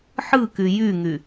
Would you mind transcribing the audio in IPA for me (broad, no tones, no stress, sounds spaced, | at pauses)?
ħ ɯ k y j y ŋ y